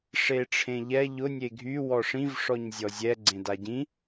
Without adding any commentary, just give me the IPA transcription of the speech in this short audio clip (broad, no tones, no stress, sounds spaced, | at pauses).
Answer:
ʂ e ʈ͡ʂʰ ẽ ʎ ɛ ʎ ʊ nʲ e ɡʱ y w ɔ ʂ ĩ v ʂ ɔ ɲ zʲ ɔ zʲ ɛ ɡ͡ǀ ẽ d a ɟ ĩ